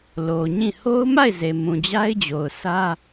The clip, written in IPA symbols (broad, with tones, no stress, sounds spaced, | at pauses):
l o˨ ɲ ĩ˦˨ h o˦ ʊ̯ m a˦˨ ɪ̯ z e˨ m ũ˨ d͡ʑ a˦ ɪ̯ d͡ʑ o˨ ʊ̯ sʰ ä˦